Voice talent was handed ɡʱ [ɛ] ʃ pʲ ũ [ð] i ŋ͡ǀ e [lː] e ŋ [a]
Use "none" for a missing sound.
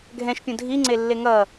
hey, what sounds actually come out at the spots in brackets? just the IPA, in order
ɛ̃, dʱ, lː, ʌ

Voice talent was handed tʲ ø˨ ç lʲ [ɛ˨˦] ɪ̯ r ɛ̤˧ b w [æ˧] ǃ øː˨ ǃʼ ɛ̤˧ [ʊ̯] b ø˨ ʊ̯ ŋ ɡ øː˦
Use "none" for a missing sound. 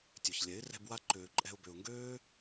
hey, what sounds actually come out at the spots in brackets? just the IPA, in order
ɛ˨˦, a˧, ʊ̯

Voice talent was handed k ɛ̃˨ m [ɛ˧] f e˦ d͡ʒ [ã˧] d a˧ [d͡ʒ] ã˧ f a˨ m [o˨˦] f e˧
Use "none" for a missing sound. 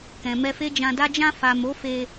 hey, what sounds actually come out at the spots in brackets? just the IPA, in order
ɛ˧, ã˧, d͡ʒ, o˨˦

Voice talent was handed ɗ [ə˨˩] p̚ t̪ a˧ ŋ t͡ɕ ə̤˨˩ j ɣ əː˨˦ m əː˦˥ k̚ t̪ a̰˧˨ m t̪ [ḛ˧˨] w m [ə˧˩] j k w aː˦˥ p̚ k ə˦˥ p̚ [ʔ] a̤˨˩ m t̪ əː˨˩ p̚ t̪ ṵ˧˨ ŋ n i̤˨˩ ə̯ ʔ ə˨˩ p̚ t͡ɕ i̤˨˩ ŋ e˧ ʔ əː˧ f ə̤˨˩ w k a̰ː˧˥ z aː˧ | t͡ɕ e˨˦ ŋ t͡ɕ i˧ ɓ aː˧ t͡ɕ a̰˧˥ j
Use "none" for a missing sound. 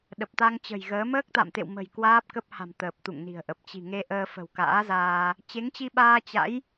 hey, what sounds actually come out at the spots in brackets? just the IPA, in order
ə˨˩, ḛ˧˨, ə̤˨˩, h

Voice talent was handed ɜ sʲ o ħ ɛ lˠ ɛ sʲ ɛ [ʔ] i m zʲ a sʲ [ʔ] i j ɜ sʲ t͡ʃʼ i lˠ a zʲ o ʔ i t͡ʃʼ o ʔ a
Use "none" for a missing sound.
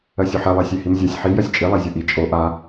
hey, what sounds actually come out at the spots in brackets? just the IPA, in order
h, ħ

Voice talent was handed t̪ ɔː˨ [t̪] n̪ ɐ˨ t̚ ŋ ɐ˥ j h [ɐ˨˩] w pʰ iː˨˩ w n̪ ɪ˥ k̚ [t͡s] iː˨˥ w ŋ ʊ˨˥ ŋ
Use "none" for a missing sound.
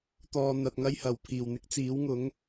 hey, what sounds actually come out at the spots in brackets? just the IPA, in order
none, ɐ˨˩, t͡s

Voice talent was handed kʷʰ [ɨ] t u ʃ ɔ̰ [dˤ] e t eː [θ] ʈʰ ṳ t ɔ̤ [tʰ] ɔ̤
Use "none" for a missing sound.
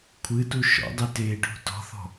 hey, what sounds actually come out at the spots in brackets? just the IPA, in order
ɨ, dˤ, none, θ

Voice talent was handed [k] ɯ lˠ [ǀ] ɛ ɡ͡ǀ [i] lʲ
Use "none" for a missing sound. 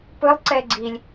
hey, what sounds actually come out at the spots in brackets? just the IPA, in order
p, ǀ, i

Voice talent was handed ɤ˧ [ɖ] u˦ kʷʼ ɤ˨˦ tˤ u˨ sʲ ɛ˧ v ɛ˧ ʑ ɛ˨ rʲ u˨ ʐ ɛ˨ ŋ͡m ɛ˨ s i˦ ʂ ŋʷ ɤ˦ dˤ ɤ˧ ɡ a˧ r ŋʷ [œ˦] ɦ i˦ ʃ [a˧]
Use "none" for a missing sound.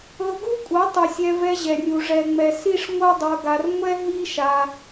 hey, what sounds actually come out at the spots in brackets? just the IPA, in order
ɡ, ɛ˦, a˧

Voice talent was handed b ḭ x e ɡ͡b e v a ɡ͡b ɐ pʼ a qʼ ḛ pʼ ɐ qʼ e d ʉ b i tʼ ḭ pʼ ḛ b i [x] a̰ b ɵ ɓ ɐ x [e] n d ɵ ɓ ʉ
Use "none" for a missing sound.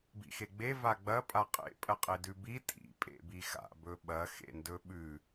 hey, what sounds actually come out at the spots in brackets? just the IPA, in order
x, ḛ

